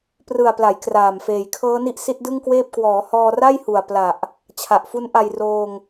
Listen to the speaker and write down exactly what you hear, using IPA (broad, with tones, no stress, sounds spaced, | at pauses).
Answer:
p r ɯ˨˩ a̯ p l a˩˦ j k r aː˨˩ m f eː˨˩ j kʰ ɤː˦˥ n i˦˥ ʔ s i˦˥ t̚ d ɯ˥˩ ŋ k w eː˥˩ p̚ k w ɔː˩˦ h ɔː˧ r a˥˩ j h u˨˩ a̯ p l a˨˩ ʔ | t͡ɕʰ a˨˩ ʔ f u˦˥ n ʔ a˧ j r oː˧ ŋ